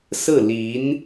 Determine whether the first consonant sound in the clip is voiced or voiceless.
voiceless